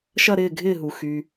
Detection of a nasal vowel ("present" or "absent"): absent